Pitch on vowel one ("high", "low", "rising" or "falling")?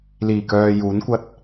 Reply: low